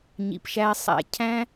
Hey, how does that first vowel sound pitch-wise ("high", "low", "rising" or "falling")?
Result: low